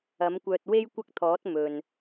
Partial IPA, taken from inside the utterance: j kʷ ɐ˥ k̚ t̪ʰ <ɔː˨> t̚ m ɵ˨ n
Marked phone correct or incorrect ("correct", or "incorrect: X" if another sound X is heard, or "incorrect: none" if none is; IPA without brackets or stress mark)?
incorrect: ɔː˨˥